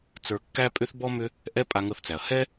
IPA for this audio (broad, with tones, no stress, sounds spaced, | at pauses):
t͡s ə˞˧ kː æ˥ pʼ ʏ˥ θ b ɔ˥ m ʏ˥ | ʔ ɛ˥ pʼ a˧ ŋ ɤ˧ θ t͡s æ˩ ɐ̯ h ɛ˥